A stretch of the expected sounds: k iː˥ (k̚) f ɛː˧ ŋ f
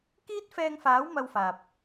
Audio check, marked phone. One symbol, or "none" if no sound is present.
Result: t̚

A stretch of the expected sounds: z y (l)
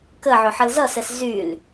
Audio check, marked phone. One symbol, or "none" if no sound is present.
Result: l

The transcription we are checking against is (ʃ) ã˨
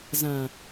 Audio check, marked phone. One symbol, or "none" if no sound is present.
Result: z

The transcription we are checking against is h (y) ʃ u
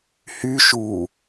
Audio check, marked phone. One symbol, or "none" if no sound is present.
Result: y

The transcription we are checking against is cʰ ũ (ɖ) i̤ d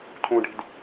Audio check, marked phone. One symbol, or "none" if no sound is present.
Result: ɖ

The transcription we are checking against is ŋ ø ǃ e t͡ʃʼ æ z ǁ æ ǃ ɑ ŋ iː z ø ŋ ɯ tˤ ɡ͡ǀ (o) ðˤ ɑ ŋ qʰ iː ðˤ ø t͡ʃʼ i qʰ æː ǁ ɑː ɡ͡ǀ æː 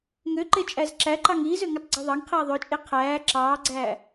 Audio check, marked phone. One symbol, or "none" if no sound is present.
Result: u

